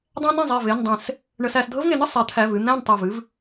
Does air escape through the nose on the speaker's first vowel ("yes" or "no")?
yes